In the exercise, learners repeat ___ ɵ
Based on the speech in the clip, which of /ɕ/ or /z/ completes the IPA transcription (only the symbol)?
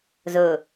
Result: z